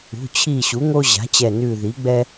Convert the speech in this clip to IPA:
ṳ˩˧˩t͡ɕʰi˧˩ ɕu˩˥ŋo˦ʑa̤˩˥t͡ɕɛ˧˩ nʉ˧˩ði˩˥ ɡ͡bɛ˦

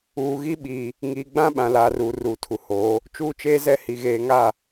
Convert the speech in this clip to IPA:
uː˨ɣi˦ɓiː˨ | ŋiː˨ɡ͡bã˦ ɓã˨laː˨ruː˨ ruː˨tʰu˨hoː˨˦ | t͡ʃuː˦t͡ʃeː˦ zɛ˦hi˨ ɣeː˨ŋa˦˨

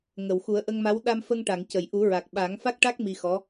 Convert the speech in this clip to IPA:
ŋə˨˩˨wxu˨˩˦ə̯ʔə˧ŋma˧˥w ɗa˧mfə˧ŋʈa˨˩˨ŋ cə˨˩˨j ʔu˨˩˦ɹa˨˩k̚ ɓa˨˩˦ŋfa˦˥k̚ʈa˦˥k̚ mi˧xɔ˧˥

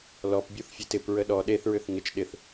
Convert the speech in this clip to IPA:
lɔpbʲuθfʲet ɪp ɹəɗɔ ɗeθɹʏθ ŋɪt͡ʃ ɗɪθ

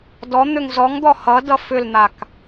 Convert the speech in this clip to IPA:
dɔn̪ʏŋ zɔŋd̪ɔ hʌ dʌfʏln̪ak

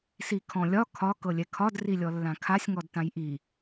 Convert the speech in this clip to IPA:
sikʰɔ̃lʲɒ kʰɒ kɤlʲɛkʰɒd rilʲɔlːãkʰasʲ ŋɔdtãjʔi

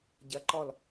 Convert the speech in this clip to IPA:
ɟɐǃɔl

